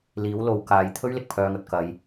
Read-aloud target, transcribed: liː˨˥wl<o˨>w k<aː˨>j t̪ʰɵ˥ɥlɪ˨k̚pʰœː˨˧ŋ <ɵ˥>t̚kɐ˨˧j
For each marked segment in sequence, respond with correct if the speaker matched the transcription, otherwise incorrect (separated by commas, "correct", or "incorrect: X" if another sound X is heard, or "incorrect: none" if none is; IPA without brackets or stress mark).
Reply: correct, correct, incorrect: ɵ˧